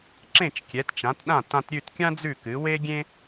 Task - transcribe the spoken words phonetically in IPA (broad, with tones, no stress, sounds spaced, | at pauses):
ǁ ẽ˥˩ t͡ʃ kʲ ɛ˩˥ t t͡ʃ ã˩˥ t ɗ ã˥˩ t ã˧ t ɾʲ ʉ˥˩ t kʲ ã˥ d͡z ʉ˥˩ k ɨ˩˥ w e˥ ɡʲ ẽ˥